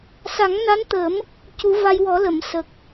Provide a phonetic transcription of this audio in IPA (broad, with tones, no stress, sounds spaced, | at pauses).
s a˨˩˦ ŋ n a˧˥ n t̪ ə˨˩˦ m | c u˨˩˦ v a˧ j w ɔ˨˩˦ l ə˨˩˨ m s ə˨˩ k̚